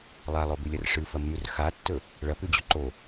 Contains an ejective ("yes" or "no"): no